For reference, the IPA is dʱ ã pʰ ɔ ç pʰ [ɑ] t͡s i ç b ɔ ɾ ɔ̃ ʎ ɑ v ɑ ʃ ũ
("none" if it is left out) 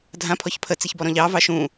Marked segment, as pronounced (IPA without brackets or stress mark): ə